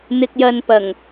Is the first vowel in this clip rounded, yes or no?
no